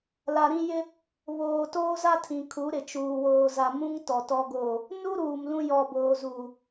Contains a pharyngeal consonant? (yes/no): no